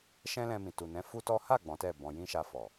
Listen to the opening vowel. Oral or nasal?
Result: nasal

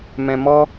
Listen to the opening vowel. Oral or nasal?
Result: nasal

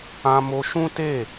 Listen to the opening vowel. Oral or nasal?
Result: nasal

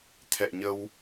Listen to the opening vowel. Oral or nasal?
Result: oral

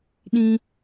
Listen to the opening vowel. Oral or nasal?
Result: nasal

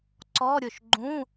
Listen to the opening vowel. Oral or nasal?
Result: oral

